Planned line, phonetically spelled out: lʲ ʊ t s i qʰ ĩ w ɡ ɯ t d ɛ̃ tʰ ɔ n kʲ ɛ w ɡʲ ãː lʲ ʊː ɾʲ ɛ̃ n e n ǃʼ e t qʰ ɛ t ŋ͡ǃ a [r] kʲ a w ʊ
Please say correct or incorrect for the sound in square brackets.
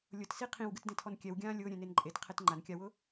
incorrect